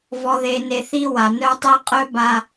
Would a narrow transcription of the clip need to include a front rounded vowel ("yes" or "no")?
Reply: yes